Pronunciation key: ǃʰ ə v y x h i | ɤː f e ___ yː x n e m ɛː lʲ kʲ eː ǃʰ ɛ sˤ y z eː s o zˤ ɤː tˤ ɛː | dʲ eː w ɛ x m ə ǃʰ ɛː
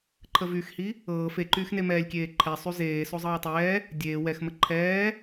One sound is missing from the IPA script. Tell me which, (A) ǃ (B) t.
A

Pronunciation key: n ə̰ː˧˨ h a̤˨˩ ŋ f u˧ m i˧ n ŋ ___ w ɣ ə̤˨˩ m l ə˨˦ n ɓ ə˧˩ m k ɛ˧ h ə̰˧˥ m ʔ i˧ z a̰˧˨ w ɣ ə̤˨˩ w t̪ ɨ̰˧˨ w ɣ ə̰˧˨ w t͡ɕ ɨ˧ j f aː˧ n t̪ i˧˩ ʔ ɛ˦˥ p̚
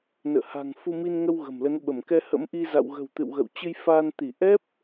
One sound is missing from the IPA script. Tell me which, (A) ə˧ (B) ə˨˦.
A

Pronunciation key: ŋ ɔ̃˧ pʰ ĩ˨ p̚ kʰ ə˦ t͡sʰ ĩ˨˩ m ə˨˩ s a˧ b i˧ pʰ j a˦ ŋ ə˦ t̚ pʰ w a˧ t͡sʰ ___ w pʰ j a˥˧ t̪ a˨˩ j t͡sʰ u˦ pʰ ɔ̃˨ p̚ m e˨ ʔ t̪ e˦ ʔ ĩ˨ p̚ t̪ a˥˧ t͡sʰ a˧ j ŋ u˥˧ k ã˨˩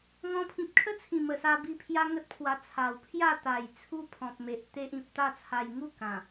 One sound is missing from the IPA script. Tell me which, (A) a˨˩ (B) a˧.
A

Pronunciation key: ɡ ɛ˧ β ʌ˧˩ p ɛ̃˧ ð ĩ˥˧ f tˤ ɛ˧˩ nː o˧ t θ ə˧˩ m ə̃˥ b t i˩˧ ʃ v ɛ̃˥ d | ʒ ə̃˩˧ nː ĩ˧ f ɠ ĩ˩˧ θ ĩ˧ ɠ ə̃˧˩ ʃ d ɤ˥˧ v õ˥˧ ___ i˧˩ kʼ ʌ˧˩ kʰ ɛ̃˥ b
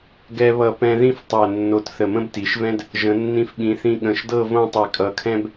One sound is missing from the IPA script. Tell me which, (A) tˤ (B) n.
A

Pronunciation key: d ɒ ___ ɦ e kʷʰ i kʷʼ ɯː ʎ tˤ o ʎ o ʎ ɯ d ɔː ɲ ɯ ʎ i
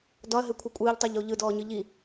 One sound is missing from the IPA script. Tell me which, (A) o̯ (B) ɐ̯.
B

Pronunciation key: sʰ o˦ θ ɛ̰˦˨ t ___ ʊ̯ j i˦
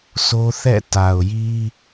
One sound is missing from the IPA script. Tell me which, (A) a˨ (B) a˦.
A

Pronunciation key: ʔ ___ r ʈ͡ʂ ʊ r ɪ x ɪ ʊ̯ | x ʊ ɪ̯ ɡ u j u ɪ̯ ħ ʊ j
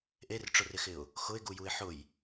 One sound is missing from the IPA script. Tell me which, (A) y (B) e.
B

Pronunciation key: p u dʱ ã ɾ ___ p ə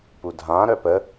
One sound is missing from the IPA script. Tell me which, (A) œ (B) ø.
A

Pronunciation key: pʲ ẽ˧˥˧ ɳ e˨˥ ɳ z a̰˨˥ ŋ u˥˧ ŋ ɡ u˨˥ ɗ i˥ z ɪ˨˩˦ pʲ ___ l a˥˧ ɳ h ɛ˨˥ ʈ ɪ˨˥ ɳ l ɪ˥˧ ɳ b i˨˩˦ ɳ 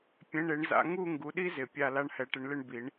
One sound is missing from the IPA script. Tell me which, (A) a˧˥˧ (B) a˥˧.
B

